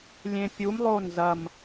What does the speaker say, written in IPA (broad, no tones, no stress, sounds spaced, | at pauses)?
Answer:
lʲ ẽ pʲ u m lˠ o n z ɐ m